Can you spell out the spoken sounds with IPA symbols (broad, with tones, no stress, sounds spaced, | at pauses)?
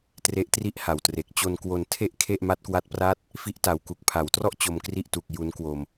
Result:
t r e˦˥ ʔ t r i˥˩ ʔ h a˨˩ w t r e˨˩ k̚ t͡ɕ o˧ n k w o˧ n tʰ e˥˩ ʔ kʰ e˥˩ ʔ m a˦˥ t̚ k w a˦˥ t̚ p r aː˥˩ t̚ | f i˦˥ ʔ t a˩˦ w k u˨˩ k̚ pʰ a˩˦ w t r ɔ˥˩ ʔ t͡ɕ o˧ m k r i˥˩ ʔ t u˨˩ k̚ j u˦˥ n k w o˧ m